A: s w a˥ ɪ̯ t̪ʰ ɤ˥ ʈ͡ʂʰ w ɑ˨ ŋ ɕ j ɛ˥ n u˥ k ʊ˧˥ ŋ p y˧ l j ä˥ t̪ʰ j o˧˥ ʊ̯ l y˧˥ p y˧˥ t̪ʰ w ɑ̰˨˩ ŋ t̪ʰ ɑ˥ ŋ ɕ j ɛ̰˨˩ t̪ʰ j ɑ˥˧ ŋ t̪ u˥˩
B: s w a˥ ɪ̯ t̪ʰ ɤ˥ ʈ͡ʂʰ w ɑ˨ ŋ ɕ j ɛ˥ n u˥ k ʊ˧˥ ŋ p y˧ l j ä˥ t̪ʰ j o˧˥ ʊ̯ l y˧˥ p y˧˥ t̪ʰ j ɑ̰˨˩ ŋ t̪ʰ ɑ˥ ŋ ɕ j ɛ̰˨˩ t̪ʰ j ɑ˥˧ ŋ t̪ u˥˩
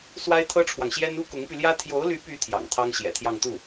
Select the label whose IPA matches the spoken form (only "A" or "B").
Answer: B